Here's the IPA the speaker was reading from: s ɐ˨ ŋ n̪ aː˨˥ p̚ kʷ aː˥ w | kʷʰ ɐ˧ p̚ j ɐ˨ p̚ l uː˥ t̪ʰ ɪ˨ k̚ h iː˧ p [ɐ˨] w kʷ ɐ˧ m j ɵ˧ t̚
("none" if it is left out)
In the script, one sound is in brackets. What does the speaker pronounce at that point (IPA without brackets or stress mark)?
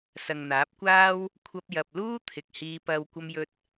ɐ˧